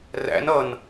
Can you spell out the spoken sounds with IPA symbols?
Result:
ræ̰n ʌn

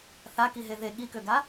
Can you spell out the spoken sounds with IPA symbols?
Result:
θakiɦe ðe ɠikøɡa

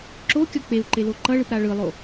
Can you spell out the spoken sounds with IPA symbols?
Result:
ǁokʲʌ k͡peu̯ǃelo ǃʌɭɯpɾa ɭɯlˠo

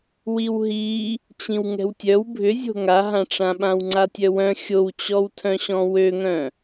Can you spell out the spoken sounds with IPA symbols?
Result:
wiwɦi | t͡ɕĩwŋɛ̤wtʲœw bʱʏzʲo̤ ŋaɦãʈ͡ʂã ɓãwŋ͡ǀatʲœwœ̃ xʲowt͡ɕɔwtʰœ̃ɕɔ̃ wøŋœ̃

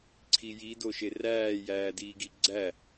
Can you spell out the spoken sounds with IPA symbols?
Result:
ǀʰijidoʃe ræːjæːdiːɡi ɡ͡ǀæ

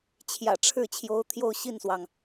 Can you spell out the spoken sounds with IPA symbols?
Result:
t͡ɕʰjä̰˨˩ʈ͡ʂʰɻ̩˥˩ t͡ɕʰjo˧˥ʊ̯t̪ʰjo˥˧ʊ̯ɕi˥˩nswɑ˩ŋ

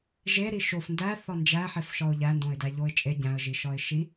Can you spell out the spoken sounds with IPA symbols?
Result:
ʒeɾi ʃof ndæθɒ nd͡ʒæħefʃɒʊ̯ ʎændõɪ̯dæʎoɪ̯ t͡ʃʼe ɟæ̃ə̯ʒiʃɒɪ̯ ʃi

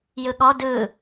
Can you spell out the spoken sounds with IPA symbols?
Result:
jɯɠɔ dɯ

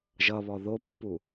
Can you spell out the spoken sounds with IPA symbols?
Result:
ʒʌβɔ ðopːu

